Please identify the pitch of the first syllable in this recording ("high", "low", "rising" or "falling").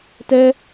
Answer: high